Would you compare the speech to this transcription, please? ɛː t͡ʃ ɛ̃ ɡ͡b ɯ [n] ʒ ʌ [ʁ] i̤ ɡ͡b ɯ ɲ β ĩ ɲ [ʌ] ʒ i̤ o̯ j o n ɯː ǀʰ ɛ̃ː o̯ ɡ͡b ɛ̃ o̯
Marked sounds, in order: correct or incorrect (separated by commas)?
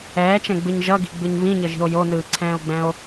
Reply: incorrect, incorrect, correct